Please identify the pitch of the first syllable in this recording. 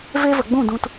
high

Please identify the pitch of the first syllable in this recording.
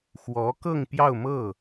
rising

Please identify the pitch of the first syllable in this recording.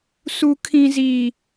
high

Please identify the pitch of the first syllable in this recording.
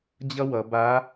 high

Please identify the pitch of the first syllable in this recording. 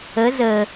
rising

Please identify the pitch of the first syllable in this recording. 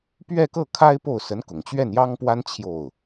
falling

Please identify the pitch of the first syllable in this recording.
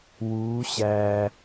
rising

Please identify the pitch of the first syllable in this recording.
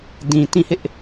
low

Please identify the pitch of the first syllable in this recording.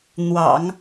low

